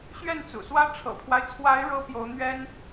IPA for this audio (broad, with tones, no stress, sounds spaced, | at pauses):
ɕ ɥ ɛ˥˩ n t͡s ṵ˨˩ s w ä˥ ʈ͡ʂʰ ɤ̰˨˩ pʰ w a˦ ɪ̯ t͡sʰ w a˧˥ ɪ̯ ɻ ɤ˥ p j o˧˥ ʊ̯ n̪ ɥ ɛ˥ n